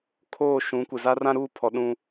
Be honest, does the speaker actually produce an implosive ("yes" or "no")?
yes